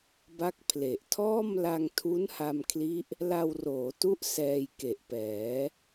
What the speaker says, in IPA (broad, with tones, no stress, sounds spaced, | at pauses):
b a˦˥ k̚ pʰ l e˨˩ ʔ tʰ ɔː˥˩ m l a˧ ŋ tʰ u˦˥ n h a˧ m kʰ l i˦˥ ʔ | l a˧ w r oː˩˦ t u˦˥ ʔ s ɛː˧ j k e˨˩ ʔ p ɛː˩˦